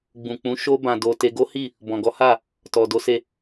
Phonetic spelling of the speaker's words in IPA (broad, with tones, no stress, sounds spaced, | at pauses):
ɡ͡b ũ˨ k͡p ũ˨˦ ʃ o˦ b ã˧ d o˧ t e˧ ɡ o˦ h i˦˨ | b ɔ̃˨ ɡ ɔ˨˦ h a˦˨ | t ɔ˨ d o˨˦ s e˧